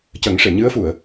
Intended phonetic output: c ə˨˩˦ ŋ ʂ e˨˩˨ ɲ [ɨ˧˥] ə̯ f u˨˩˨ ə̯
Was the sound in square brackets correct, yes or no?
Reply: yes